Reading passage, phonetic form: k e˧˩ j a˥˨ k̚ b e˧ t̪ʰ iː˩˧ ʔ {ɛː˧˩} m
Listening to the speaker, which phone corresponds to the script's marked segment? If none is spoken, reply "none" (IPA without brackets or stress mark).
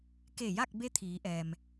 ɛː˩